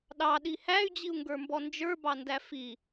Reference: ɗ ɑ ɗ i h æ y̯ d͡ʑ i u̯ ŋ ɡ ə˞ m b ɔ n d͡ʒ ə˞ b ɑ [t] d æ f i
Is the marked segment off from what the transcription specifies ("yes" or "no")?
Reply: yes